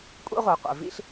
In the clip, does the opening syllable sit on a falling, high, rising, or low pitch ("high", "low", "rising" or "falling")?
high